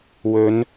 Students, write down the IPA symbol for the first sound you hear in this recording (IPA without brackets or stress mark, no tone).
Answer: w